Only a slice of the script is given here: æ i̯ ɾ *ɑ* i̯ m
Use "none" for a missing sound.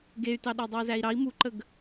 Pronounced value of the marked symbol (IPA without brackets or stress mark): ɑ